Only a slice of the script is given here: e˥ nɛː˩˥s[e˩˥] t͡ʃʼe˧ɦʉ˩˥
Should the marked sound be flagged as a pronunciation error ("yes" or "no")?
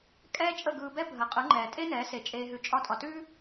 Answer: no